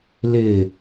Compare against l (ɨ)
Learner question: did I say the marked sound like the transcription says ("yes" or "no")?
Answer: no